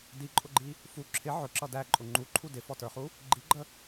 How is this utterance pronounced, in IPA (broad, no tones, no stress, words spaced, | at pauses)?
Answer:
diǃʼʊɡ͡ǃi | fu ǁʰɪ ʕʊǁʌ dæǃʼʊ ŋ͡ǃuǃʰu dɪfɔtə˞χu | ɡ͡ǃiɡ͡ǃə